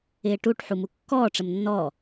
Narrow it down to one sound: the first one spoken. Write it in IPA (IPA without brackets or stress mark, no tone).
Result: ɪː